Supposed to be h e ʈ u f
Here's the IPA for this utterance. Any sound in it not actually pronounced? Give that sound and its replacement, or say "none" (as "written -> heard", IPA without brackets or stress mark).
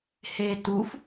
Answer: ʈ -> t